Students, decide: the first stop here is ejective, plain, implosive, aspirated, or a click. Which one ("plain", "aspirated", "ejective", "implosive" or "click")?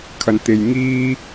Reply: aspirated